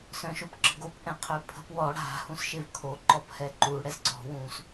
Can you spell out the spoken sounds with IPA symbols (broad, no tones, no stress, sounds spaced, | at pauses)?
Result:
s œ̃ ʃ o p ǁ ə̤ ɡ o p ʔ ɛ̃ qʰ ø pʰ ə̤ p w ɔ ɽ a̤ h ũ s ʃ e v kʰ o ǃ ɔ p h ɛ ǃ u ɽ ɛ s ǀ ɔ̤ w ũ s